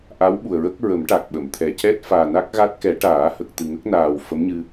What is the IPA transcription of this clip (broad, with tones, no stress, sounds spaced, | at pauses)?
ʔ a˧˥ w ɓ u˨˩ ə̯ ɹ ə˦˥ k̚ ɹ ə˨˩˦ m ʈ a˨˩ k̚ ɓ ə˨˩˨ m t̪ʰ ɛ˨˩ c ɛ˦˥ t̚ f aː˨˩ n a˦˥ k̚ ɣ a˦˥ t̚ k ɛ˨˩˦ ʈ aː˨˩˦ h ə˨˩ k̚ t̪ ɨ˨˩ ŋ ə˦˥ k̚ n aː˨˩ w f ə˧˥ m ɲ ɨ˧